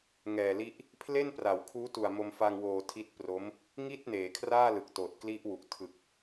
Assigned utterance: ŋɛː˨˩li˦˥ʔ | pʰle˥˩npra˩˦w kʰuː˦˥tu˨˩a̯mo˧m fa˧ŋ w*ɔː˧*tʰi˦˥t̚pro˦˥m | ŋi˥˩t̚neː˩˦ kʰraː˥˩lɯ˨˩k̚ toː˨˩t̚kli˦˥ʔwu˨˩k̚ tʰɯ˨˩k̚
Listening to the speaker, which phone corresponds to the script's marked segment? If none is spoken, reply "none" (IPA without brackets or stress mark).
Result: oː˧